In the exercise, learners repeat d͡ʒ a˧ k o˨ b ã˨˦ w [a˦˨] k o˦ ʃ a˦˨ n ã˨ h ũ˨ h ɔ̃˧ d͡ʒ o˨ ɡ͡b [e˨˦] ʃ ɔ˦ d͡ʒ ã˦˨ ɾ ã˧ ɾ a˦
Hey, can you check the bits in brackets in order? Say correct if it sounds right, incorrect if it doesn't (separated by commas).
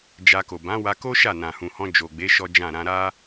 incorrect, correct